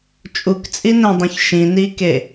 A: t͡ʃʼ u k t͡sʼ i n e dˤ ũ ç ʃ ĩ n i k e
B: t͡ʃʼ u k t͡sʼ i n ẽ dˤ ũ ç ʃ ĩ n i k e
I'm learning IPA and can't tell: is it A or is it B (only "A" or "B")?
B